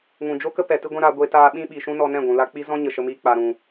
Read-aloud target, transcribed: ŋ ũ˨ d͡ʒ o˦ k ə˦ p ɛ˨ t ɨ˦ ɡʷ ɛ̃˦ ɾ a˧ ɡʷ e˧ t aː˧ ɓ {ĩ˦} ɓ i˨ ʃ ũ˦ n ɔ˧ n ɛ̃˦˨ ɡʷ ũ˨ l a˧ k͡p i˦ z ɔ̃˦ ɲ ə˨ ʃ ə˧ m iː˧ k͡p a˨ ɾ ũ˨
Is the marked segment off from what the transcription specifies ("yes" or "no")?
no